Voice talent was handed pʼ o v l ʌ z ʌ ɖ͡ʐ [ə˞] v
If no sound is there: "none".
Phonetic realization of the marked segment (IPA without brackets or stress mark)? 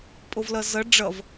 ʌ